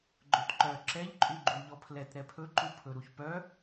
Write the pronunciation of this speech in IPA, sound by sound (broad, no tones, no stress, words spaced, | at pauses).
ɡ͡ǃɵtǃœ ǁɛʎǃʼʉɡ͡ǃu ʎɔpʰlɛt ɾɛpʰɵǃupʰɵ ɾuçpœ